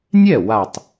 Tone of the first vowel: falling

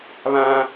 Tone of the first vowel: high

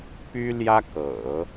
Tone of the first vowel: high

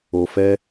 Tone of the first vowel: low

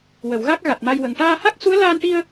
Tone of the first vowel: low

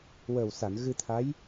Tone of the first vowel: low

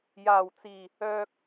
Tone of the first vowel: low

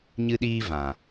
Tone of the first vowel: high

